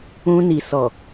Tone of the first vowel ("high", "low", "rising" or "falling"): high